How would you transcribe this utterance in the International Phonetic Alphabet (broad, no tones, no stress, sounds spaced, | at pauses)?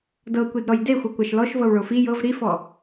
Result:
d ɤ kʷ i d ɾ ɔ j d e xʷ ɤ kʷ a ʃ l ɔ ʃ v ɤ w ɭ o f i j ɤ v ɾ i f ɔ